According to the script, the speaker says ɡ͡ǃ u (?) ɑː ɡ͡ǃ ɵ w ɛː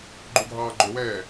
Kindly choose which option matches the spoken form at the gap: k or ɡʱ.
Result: ɡʱ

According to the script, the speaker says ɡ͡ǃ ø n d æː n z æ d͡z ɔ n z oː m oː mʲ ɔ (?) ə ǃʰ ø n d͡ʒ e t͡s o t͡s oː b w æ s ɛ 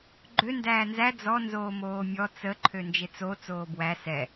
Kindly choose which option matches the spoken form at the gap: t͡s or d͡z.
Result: t͡s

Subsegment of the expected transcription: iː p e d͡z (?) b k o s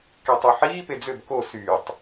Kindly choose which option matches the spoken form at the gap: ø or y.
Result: ø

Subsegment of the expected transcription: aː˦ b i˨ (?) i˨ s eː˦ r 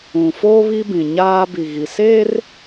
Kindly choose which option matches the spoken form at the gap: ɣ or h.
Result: ɣ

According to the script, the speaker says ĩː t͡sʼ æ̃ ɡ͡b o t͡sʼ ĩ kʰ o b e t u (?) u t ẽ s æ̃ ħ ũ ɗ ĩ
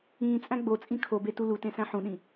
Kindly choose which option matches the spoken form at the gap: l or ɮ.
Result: l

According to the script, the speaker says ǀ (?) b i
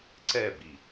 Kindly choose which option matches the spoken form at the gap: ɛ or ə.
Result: ɛ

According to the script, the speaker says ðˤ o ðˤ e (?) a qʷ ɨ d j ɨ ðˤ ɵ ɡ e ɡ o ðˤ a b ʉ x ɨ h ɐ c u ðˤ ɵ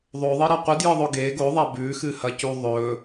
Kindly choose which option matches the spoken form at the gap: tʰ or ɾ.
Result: ɾ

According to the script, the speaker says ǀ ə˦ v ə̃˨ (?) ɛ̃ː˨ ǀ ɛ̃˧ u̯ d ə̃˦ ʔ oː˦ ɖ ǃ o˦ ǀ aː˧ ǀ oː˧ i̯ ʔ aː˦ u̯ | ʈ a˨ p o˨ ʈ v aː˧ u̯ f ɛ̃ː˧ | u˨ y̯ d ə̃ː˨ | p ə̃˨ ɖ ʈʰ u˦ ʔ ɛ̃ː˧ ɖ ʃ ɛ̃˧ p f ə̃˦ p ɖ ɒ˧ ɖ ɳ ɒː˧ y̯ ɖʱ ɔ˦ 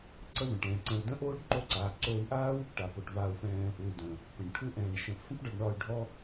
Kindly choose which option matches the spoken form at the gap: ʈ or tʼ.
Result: ʈ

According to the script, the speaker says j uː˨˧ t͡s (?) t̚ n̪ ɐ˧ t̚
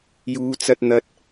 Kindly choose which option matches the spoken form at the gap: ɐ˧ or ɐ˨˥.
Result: ɐ˧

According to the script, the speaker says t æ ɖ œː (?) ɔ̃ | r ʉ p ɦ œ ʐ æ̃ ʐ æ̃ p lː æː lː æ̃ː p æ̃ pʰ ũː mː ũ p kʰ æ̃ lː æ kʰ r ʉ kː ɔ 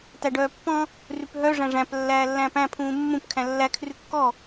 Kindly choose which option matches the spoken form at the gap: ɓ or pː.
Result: pː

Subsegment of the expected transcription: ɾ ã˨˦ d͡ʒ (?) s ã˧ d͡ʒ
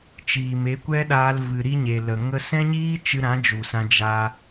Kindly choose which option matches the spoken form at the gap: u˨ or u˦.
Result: u˨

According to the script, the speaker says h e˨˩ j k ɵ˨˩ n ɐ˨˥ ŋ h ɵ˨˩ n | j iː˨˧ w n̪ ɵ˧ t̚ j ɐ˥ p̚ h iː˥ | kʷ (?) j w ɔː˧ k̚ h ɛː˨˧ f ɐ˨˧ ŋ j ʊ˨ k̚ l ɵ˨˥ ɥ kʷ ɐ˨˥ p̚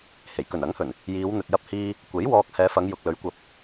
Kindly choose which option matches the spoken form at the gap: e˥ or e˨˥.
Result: e˨˥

